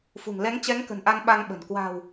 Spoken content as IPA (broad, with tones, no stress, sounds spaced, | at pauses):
f ṳ˨˩ ŋ l ɛ˨˦ ŋ t͡ɕ ɛ˨˦ ŋ k ə̤˨˩ n ʔ a˧ n ɓ a˧ ŋ ɓ ə̤˨˩ n k w a̤˨˩ w